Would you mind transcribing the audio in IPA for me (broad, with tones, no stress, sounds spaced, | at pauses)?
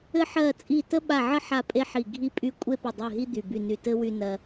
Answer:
ɘ˥ ħ ɜ˦˨ t͡sʼ i˦˨ t ə˥ ɓ a˦˨ ʕ ə˥ ħ a˦˨ pʼ e˥ ħ i˦˨ ɡʱ i˦˨ pʼ y˦˨ kʷʼ e˥ p ɘ˦˨ dˤ i˦˨ ɦ i˥ d̪ y˦˨ b y˦˨ n y˦˨ t ɘ˥ w y˥ n ɜ˥